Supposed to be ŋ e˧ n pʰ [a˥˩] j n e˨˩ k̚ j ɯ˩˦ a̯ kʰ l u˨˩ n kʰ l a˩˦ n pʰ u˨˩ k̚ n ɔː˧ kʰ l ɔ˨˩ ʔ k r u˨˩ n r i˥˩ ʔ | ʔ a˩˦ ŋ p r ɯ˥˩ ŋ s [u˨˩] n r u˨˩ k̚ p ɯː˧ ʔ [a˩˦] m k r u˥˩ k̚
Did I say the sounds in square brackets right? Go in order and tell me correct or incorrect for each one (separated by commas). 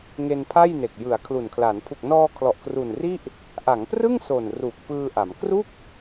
correct, incorrect, correct